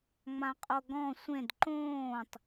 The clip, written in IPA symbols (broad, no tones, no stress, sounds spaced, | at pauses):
ŋ͡m ã qʼ o ɡ ɔ̃ sʷ ẽ d ǃ õː tˤ